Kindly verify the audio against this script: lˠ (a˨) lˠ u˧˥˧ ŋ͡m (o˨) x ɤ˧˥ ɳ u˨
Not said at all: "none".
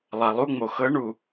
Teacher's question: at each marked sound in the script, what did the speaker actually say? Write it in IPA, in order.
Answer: a˨, o˨

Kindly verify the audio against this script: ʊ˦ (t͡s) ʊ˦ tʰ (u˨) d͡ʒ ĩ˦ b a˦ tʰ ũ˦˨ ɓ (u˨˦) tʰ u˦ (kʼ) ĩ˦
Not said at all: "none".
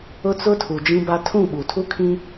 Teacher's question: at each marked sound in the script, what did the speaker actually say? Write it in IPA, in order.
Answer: t͡s, u˨, u˨, kʰ

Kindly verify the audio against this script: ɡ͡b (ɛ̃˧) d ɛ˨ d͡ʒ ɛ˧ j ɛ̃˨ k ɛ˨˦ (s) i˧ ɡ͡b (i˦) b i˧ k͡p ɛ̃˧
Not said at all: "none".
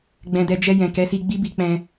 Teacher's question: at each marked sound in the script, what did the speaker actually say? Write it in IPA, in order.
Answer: ɛ̃˨, s, i˦

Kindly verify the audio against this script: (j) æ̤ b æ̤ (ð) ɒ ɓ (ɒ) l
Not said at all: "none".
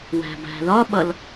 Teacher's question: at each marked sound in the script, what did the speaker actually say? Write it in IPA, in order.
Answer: w, ð, ʌ

